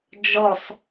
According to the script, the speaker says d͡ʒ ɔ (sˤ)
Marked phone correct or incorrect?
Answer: correct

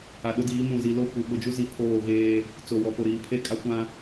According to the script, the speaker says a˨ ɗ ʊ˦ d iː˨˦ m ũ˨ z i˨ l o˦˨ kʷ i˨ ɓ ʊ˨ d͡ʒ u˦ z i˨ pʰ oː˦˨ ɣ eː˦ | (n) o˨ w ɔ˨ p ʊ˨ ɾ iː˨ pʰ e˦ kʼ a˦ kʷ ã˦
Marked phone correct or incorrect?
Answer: incorrect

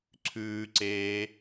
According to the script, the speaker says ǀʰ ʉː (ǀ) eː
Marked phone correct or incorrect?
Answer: correct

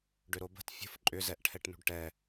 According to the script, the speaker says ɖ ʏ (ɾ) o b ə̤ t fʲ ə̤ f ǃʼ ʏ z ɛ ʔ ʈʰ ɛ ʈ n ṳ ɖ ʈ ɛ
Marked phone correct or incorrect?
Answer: correct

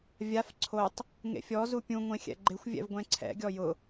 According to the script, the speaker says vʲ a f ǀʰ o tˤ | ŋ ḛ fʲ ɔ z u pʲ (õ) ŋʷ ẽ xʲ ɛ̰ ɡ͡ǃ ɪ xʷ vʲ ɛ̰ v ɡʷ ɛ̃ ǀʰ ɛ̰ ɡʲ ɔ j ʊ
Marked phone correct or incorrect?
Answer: incorrect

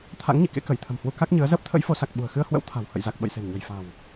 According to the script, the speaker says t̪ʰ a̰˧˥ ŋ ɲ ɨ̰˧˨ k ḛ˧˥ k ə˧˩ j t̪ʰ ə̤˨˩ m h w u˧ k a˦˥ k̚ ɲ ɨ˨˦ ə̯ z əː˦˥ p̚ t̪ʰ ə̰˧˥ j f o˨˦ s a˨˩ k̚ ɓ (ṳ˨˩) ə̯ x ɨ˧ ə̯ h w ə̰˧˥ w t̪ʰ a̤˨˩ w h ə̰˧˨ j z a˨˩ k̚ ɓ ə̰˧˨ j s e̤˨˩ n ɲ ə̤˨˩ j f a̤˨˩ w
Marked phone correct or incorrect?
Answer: correct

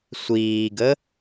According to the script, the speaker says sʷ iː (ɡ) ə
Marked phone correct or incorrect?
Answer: correct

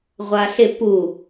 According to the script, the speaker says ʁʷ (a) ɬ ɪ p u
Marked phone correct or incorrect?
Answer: correct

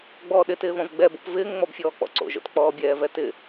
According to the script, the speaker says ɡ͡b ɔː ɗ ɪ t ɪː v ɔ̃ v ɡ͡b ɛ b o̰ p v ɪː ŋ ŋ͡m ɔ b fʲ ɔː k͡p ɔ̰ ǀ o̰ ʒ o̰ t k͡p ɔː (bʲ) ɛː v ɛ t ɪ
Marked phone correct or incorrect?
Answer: correct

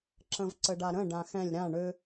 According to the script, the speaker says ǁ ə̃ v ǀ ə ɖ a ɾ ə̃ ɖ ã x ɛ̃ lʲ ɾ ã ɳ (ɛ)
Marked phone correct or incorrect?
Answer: incorrect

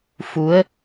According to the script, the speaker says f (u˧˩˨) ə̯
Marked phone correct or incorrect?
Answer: incorrect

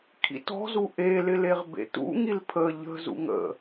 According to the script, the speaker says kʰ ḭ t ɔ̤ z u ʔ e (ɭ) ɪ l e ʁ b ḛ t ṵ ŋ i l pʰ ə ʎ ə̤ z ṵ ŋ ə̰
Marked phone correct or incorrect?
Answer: incorrect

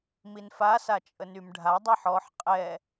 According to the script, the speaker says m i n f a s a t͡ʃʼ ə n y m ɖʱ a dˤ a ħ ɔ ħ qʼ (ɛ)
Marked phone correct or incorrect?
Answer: correct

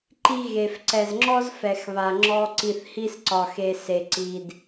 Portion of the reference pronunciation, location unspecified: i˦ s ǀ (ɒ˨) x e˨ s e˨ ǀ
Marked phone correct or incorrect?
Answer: correct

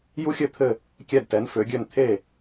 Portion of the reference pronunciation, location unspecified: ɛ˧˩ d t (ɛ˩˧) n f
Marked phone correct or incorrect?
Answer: correct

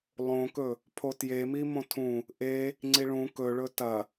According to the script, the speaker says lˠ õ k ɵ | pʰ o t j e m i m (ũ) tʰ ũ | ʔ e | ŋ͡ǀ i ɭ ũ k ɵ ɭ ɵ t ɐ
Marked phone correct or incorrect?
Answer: incorrect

